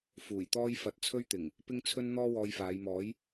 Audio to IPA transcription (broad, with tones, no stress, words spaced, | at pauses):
fuː˨˩jt̪ɔː˥j fɐ˧t̚t͡sʰɵ˥ɥt̪ɪ˨˩ŋ | pɪ˥ŋt͡sʰɵ˥n n̪ɔː˥ wɔː˧jfaː˨˧jmɔː˨˥j